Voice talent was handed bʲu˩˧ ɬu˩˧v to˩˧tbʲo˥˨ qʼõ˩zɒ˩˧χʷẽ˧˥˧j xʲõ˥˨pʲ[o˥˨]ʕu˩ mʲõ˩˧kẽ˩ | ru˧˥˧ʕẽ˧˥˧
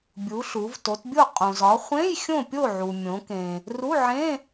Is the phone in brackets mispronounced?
no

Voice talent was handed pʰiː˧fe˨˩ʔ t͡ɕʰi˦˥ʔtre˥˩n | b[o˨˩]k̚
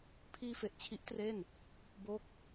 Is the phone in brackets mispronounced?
yes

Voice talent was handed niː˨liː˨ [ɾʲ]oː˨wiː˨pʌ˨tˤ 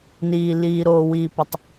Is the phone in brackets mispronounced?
yes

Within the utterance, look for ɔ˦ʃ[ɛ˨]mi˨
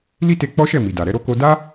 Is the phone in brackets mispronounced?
yes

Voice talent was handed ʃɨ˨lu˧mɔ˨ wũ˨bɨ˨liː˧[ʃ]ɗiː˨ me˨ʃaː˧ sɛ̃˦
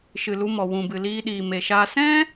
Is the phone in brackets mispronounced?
yes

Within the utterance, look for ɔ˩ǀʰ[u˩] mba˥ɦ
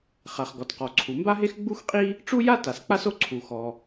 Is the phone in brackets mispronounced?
no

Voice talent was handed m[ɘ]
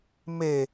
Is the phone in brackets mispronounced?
yes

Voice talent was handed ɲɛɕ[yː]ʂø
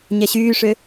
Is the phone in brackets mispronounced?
no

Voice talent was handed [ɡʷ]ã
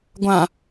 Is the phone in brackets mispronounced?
no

